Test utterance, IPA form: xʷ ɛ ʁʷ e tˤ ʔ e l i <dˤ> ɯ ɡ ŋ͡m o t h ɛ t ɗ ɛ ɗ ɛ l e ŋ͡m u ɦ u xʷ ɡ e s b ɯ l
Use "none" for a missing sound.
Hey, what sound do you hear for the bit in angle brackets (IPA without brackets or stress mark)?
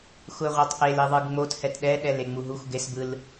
ðˤ